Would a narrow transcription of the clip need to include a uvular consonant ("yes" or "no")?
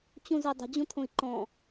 no